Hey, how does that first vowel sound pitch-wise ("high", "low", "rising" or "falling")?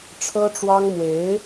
high